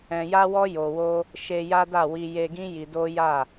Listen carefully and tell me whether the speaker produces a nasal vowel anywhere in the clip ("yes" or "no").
yes